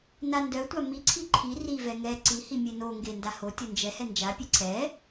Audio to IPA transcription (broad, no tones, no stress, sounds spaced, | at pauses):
n a n d œ tʷ a m i ǀʰ i ǃʰ i r i v ɛ ŋ ɛ ǀ i h i mʲ e n o ŋ ɡ e n d a h o tʲ o n d͡ʒ ɛ h ɛ n d͡ʒ a pʲ e ǀʰ ɛ